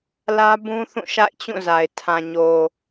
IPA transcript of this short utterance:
l ä˦ b ũ˦ θ ũ˦˨ ʃ a̰˦˨ ɪ̯ t͡ɕ ũ˦˨ z a˨ ɪ̯ tʰ ã˨ ɲ o˨

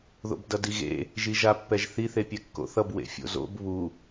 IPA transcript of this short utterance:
ð o̰ b d ʌ d i ɣ ḛ | ʒ i ʒ a pː ɛ ʒ θ i θ e pʲ ɛ kː o̰ θ ʌ b w ḛ fʲ o̰ z o̰ b β u

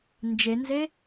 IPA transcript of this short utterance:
n d͡ʒ e n z e

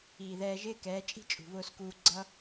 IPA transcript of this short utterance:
iː˨ ð ɛː˧ ʒ ɪː˦ k ɛː˨˦ t͡ʃʼ i̤˦ t͡ʃʼ ṳ˨ β ʊː˧ s k uː˧ ɡ͡ǀ ʌ˦

